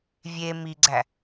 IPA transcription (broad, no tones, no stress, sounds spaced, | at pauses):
vʲ e m i ɡ͡ǀ æ